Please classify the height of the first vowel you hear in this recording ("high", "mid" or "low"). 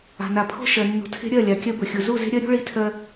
low